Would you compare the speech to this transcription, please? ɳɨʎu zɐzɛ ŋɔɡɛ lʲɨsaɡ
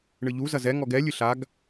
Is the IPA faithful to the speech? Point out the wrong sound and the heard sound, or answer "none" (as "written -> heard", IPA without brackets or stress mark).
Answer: s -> ɬ